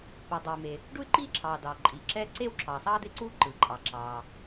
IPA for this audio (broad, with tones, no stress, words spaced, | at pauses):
pɯː˩dˤiː˩me˩ | ɖu˥y̯ǃiː˥ǁʰɑː˩ dɑː˩ ǃʼiː˩ǁɛː˥ ǀeː˥wǁʰɑː˩sˤɑː˥ d̪e˥ǀu˥ ǃɯː˩ǃʼɑ˩ǁɑː˩